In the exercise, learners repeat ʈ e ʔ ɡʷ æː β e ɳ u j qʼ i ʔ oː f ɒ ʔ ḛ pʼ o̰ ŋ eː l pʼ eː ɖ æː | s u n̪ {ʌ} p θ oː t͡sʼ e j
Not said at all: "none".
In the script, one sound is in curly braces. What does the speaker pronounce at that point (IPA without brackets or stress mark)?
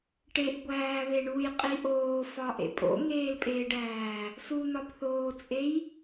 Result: ɒ